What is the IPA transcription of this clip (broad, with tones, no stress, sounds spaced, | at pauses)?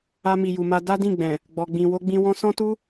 a˧ m i˨ j u˨ m a˧ d a˦ d ĩ˦˨ ɡ͡b ɛ̃˨ | ɡ͡b ɔ˨ ɡ͡b ĩ˨ w o˧ ɡ͡b ĩ˧ w ɔ̃˧ s ɔ̃˦ t u˦